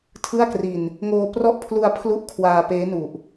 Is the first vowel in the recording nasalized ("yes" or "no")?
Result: no